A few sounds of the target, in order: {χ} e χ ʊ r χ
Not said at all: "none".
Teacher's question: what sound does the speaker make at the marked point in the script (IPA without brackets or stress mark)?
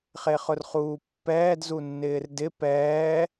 χ